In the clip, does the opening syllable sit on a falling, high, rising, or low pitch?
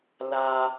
high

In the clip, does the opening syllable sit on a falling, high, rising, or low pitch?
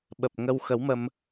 low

